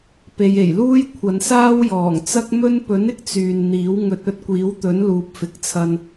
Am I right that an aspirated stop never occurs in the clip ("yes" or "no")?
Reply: no